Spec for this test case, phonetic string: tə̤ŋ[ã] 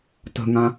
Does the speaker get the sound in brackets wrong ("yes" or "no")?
no